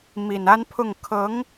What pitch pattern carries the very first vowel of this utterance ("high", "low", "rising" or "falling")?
low